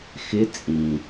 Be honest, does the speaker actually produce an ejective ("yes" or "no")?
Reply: yes